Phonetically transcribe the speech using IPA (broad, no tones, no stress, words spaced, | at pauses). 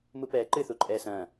mupɛːǃɨ θuǃʼɛːsɐ̃ː